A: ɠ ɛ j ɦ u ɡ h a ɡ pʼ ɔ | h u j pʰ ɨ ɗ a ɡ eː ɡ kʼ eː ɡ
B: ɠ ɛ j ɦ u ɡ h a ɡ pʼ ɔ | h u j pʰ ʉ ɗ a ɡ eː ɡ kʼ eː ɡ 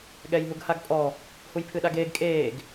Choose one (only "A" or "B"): A